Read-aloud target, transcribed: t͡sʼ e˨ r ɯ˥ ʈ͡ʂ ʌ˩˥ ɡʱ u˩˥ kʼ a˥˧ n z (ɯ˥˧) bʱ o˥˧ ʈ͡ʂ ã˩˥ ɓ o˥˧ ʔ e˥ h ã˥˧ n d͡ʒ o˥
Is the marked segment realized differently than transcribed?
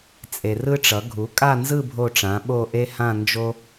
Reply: no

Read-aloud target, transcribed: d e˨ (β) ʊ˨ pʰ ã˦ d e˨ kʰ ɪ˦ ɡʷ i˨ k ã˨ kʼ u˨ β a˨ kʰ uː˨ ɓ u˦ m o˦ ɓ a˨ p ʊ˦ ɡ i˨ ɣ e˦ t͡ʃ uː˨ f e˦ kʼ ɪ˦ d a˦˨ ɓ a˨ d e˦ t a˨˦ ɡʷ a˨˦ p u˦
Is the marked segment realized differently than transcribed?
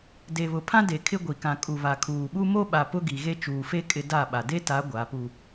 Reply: no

